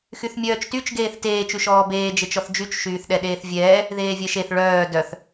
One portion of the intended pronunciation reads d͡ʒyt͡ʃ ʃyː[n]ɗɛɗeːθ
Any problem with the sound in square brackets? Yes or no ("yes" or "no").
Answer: yes